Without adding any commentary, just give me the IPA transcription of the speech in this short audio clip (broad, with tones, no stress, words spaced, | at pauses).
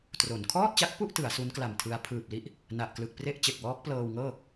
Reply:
tro˩˦n kʰɔː˥˩t̚t͡ɕa˦˥k̚pu˥˩ʔ tɯ˩˦a̯su˦˥nkla˨˩mtʰɯ˧a̯ pʰɯː˨˩p̚li˦˥ʔ | na˨˩ʔklɯ˨˩k̚pre˥˩ʔ t͡ɕe˨˩k̚wɔː˦˥k̚ plɤː˧wŋɤː˥˩